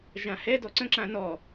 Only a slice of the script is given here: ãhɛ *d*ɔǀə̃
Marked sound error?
no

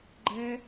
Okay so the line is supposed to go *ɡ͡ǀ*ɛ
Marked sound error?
yes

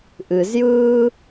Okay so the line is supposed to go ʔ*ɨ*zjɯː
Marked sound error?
no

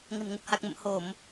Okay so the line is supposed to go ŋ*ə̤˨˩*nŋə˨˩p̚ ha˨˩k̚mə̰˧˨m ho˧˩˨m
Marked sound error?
no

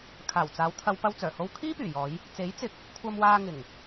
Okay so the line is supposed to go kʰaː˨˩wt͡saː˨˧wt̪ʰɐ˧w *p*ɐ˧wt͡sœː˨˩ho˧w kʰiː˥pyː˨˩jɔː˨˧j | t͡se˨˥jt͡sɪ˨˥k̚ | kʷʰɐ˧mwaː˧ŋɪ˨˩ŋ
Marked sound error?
no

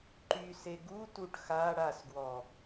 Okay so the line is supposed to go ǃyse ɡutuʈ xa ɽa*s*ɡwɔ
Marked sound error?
no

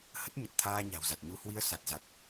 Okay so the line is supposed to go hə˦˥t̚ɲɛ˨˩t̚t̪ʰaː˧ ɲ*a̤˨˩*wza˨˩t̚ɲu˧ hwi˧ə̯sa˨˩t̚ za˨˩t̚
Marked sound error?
no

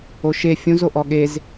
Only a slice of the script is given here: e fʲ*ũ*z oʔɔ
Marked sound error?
no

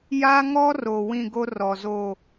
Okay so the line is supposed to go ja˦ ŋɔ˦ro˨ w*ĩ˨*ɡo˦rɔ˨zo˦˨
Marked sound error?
yes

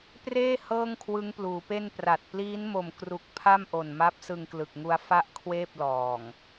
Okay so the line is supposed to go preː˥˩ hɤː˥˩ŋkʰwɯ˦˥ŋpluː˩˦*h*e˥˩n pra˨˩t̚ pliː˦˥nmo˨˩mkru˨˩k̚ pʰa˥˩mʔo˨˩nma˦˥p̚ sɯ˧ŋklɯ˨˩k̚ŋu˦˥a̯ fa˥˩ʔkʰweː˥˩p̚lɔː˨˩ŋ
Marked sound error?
yes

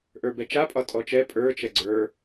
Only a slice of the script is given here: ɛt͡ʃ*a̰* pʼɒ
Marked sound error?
yes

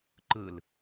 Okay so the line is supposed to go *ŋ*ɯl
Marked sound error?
yes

